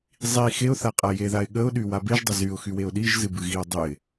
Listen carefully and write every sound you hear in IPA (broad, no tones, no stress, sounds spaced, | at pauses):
zˤ i x e ʊ̯ θ a qʼ a j e ð a ɪ̯ ɠ ə ʊ̯ ɗ y w a b e ʒ dˤ ə z y ʊ̯ x y w e ʊ̯ ɗ i ʒ z ɨ b ɨ ɣ i ʊ̯ dˤ ɨ ɪ̯